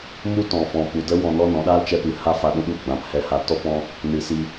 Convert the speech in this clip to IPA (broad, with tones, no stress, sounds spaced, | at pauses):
m u˦ t ɔ̃˨ f ɔ̃˨ p u˨ d ə˦ w ɔ̃˧ n ɔ˦ n ɔ̃˨˦ ɗ aː˦ l t͡ʃ ɛ˧ p ɨ˨ h a˦ f a˧ ɗ ũ˦ ɗ u˦˨ ɡ͡b ã˨˦ p h ɛ˧ h a˧ t ɔ˦ p ɔ̃˦ | n ɨ˨ s i˧